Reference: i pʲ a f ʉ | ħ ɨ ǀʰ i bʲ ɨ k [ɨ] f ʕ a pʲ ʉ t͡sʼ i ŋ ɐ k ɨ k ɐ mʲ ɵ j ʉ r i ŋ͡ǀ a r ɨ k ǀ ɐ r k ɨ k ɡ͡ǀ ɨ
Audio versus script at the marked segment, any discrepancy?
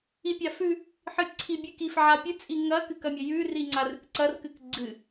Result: yes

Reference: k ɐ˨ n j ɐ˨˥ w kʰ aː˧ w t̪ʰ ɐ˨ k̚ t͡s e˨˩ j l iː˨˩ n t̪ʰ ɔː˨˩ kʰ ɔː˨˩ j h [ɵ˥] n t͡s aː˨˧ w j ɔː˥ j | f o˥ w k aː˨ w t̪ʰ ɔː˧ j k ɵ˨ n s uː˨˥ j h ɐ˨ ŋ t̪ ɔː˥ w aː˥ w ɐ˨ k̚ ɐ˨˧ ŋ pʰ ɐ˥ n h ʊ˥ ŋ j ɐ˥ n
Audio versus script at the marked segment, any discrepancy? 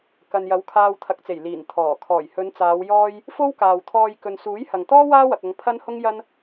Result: yes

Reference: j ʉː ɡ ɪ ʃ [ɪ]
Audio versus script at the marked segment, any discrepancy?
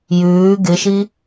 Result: yes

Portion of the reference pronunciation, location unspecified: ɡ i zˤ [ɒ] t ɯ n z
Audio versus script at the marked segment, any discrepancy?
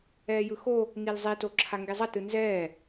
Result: yes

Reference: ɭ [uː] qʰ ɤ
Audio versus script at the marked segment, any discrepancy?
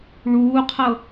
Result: no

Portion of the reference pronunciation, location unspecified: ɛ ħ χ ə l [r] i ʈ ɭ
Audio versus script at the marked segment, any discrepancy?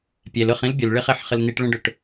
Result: yes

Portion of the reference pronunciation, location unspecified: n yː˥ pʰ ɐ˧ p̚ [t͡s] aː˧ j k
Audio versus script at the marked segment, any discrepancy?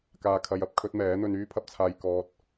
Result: yes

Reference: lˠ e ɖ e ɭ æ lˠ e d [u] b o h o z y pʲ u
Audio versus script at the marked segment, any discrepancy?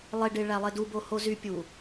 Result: no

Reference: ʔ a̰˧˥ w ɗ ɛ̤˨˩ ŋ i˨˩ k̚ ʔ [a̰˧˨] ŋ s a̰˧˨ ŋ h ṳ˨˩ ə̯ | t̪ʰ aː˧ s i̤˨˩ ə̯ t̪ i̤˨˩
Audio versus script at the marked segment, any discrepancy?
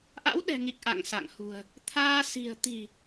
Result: no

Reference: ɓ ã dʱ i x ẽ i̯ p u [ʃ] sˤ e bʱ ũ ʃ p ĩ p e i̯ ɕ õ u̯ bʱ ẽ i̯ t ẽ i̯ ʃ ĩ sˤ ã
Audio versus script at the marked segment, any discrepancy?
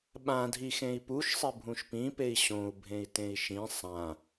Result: no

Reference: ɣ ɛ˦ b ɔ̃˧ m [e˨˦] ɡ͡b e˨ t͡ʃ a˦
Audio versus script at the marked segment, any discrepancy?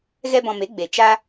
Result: no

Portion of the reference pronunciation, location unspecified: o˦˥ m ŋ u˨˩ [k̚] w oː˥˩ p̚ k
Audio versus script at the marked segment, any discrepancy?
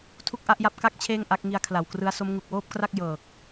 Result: no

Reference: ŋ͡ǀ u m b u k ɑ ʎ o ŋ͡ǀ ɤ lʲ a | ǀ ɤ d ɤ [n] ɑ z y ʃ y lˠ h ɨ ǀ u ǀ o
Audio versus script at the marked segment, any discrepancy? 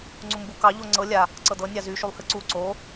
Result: yes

